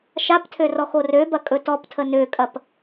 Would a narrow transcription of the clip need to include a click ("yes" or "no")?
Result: no